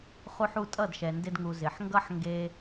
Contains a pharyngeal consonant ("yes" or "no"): yes